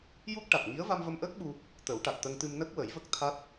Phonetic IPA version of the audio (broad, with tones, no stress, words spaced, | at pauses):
ju˦˥k̚ʈa˨˩t̚ŋi˧˥ə̯ va˧mvə˧mʔəː˦˥k̚ɓu˧ | t̪ə˨˩˦wʈa˨˩t̚t̪ə˧ŋt̪ɨ˧m nə˦˥k̚wə˨˩˦jvə˦˥k̚ t̪ʰa˦˥t̚